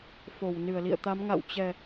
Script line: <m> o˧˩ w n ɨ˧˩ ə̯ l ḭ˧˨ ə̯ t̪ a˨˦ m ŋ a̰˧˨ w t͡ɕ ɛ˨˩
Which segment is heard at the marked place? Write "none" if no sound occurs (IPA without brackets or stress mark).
f